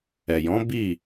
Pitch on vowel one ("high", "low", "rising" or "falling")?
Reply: low